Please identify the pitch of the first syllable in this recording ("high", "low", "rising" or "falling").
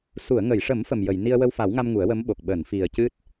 low